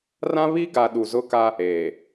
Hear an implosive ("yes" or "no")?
yes